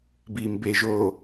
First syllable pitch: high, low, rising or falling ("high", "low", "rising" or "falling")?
low